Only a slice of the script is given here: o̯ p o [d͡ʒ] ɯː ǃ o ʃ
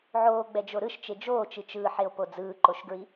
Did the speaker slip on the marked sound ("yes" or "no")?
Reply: yes